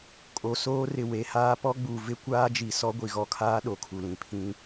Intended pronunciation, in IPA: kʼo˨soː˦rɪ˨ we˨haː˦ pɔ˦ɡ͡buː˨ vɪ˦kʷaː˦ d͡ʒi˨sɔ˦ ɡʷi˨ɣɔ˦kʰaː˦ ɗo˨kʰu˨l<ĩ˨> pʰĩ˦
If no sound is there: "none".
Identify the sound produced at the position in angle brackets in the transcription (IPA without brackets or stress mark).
ĩ˨